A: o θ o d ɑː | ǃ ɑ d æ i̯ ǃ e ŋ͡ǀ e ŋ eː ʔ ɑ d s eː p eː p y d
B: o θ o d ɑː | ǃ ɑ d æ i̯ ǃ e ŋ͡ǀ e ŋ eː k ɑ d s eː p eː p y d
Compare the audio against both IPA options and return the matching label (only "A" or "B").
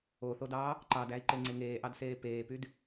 A